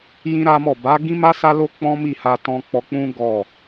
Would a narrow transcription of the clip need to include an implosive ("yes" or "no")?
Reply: no